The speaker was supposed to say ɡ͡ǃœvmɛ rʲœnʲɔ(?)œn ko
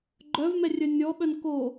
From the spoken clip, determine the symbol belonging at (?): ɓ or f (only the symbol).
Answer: ɓ